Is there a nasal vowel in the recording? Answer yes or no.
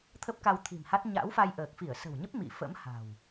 no